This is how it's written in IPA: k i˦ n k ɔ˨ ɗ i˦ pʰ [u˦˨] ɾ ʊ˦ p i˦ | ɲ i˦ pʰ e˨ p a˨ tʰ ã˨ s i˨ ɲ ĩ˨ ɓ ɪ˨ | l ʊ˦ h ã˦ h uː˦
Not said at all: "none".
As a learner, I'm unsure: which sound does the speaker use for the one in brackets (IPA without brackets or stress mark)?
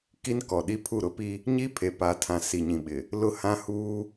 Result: u˦˨